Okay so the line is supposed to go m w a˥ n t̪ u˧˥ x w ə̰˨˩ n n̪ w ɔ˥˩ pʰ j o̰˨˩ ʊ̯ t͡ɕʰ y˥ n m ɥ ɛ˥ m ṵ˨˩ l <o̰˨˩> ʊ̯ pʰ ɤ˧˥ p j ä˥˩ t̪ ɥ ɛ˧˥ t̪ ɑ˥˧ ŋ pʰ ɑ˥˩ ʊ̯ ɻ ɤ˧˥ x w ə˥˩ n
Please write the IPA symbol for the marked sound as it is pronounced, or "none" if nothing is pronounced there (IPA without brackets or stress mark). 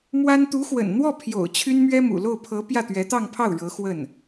o˥˩